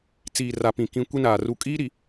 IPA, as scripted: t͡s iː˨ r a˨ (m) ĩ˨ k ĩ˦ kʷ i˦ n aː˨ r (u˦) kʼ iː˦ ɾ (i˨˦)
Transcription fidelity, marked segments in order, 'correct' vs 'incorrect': incorrect: p, incorrect: u˦˨, incorrect: i˨

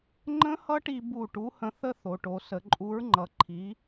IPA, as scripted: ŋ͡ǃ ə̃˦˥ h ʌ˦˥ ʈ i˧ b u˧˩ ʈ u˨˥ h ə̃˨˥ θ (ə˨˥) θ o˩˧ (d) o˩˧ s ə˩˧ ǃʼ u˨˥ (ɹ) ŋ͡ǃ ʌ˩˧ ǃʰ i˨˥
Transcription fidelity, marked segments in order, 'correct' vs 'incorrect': incorrect: ə˦˥, incorrect: ʈ, correct

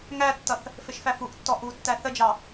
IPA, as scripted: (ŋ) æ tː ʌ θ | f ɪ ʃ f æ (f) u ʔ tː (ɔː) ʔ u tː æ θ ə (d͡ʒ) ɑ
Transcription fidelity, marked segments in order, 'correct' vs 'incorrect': correct, correct, incorrect: ɔ, correct

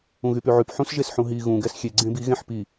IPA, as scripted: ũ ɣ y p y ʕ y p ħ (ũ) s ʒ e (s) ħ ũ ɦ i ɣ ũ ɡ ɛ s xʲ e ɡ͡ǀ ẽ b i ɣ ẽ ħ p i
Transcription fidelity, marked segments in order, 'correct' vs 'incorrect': correct, correct

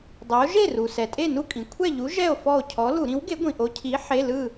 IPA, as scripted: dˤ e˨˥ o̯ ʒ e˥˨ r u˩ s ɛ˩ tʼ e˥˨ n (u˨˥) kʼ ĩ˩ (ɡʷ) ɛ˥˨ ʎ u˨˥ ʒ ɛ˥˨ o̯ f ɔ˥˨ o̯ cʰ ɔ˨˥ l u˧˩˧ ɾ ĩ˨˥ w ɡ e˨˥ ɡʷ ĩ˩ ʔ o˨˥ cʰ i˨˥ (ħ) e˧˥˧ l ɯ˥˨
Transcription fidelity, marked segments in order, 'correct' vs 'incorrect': incorrect: u˥˨, incorrect: kʷʰ, correct

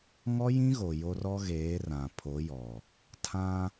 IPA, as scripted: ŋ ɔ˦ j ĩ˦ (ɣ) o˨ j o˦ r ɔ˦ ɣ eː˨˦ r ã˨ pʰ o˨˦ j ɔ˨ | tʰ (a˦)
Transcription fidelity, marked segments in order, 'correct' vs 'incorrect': correct, incorrect: ã˦

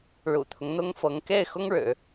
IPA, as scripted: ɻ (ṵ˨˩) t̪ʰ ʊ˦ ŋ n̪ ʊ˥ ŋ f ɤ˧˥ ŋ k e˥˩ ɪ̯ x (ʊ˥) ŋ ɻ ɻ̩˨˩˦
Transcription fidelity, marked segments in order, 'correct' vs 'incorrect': correct, correct

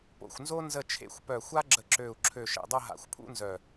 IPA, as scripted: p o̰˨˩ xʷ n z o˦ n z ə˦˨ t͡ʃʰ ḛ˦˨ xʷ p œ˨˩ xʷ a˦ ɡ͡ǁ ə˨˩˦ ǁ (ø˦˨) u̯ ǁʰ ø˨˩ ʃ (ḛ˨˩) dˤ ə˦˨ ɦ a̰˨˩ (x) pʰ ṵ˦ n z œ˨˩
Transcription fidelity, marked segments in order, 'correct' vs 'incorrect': incorrect: ø˨˩, correct, incorrect: xʷ

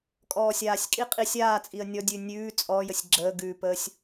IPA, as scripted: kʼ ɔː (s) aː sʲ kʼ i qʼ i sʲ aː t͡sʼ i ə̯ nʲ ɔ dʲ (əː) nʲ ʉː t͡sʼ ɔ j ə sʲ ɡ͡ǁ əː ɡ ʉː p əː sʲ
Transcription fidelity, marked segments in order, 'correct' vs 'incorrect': incorrect: sʲ, incorrect: ʉː

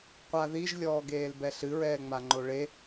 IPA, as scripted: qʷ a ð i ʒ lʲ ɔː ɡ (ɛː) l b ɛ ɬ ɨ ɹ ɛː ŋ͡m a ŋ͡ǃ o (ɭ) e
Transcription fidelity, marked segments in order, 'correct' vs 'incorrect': incorrect: eː, correct

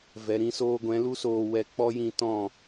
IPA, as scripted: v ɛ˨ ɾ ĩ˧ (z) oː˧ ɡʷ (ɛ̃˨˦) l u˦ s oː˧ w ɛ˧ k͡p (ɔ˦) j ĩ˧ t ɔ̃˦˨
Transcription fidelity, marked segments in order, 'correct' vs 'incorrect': incorrect: s, correct, correct

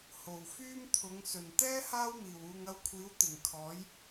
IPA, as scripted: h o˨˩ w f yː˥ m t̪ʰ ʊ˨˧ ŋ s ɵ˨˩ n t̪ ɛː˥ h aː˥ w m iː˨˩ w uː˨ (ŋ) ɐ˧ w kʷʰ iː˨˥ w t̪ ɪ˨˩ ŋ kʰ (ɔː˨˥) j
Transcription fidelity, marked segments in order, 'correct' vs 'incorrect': correct, correct

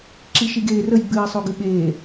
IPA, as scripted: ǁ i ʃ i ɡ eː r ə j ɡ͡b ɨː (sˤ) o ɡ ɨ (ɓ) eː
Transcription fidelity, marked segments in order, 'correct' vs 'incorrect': correct, correct

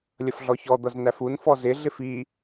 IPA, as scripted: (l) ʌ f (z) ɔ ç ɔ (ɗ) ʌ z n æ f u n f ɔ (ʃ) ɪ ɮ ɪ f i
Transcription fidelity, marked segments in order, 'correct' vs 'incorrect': incorrect: lʲ, incorrect: ɮ, incorrect: d̪, incorrect: z

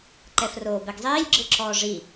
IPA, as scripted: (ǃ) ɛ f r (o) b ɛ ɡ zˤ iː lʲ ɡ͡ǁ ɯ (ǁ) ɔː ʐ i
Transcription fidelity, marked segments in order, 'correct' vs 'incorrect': correct, incorrect: oː, correct

